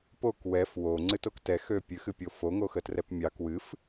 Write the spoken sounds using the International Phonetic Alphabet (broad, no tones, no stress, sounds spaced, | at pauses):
p o k w ɛ f w o ŋ͡ǀ ɨ t o k t ɛ x ø pʲ ɨ x ɨ pʲ o f o ŋ o x ə t r ɛ p mʲ ɑ k w ɨ f